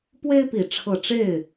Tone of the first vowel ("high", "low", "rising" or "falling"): high